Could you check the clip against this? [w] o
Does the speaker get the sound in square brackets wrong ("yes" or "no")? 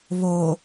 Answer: yes